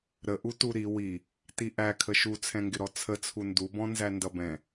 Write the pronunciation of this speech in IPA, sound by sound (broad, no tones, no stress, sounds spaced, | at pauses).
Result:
ɾ ə ʔ u t u ɾ i w i | t i ʔ æ kʰ ə ʃ u t͡sʰ ɛ̃ ŋ ɡ ɪ ɾ ɔ t͡sʰ ə t͡sʰ u n d u b ɔ̃ n z æ n d ʌ b ɛ̃